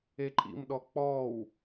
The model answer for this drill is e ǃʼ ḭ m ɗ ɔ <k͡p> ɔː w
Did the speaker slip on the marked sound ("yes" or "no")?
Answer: no